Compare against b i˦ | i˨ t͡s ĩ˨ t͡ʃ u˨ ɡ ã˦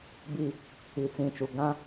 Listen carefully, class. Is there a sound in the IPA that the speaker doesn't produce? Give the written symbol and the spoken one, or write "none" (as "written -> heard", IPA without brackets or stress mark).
none